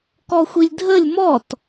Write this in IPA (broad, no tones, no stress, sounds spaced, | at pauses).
k ɔ xʷ i lʲ dʱ ə lʲ m ɔ t